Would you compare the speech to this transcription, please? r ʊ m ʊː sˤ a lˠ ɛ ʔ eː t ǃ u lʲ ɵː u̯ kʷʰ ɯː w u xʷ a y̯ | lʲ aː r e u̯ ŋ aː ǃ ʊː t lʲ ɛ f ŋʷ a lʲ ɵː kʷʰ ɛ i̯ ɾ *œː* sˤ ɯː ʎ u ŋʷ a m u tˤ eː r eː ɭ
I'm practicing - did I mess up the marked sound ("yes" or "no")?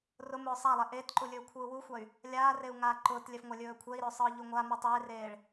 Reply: yes